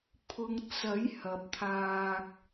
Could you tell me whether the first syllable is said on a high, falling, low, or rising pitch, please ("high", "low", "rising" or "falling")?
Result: low